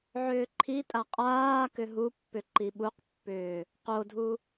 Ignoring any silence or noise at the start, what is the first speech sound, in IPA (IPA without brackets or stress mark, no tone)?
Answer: ʕ